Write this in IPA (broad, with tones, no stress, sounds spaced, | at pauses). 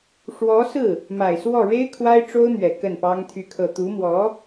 ʂ w ɔ˧˥ s ɹ̩˥˩ | m a˨˩ ɪ̯ s w ɔ˥˩ ɻ e˥ ɪ̯ kʰ w a˥ ɪ̯ ʈ͡ʂ o˥ ʊ̯ n̪ ɥ ɛ˨˩ k ə˥˩ n p ɑ˥ ŋ t̪ʰ y˥˧ kʰ ɤ˥˩ t̪ u˧˥ m w ɔ˧˥